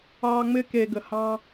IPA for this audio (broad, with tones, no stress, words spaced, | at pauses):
ɑː˧ŋ͡mɪ˦ ke˧ɡə˨ hɑ̃˦